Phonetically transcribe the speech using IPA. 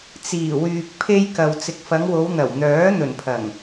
t͡s iː˨˩ w yː˨ k̚ pʰ e˧ j k ɐ˨ w t͡s ɪ˨ k̚ f ɐ˨˧ ŋ w o˨˧ w n̪ ɐ˨˩ w n̪ œː˨˥ n̪ ɵ˨˩ n pʰ ɐ˨˩ ŋ

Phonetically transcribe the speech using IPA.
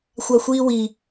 xʷ a xʷ iː w i

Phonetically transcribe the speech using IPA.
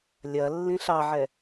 lʲ ɐ lː ĩ ɬ ɑ ʕ ɛ

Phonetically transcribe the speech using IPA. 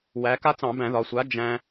w æ˩˧ k a˦ t͡s ɑ̃˧˩˧ b æ̃˧˩˧ ð ɒ˩˧ sʷ a˨˥ d͡ʒ æ̃˦

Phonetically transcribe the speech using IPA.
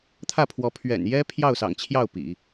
t̪ʰ ä˥˩ pʰ w ɔ˧˥ pʰ ɥ ɛ̰˨˩ n j ɛ˥ pʰ j ɑ˥˩ ʊ̯ s ɑ̰˨˩ ŋ t͡ɕʰ j ɑ˥˩ ʊ̯ p ḭ˨˩˦

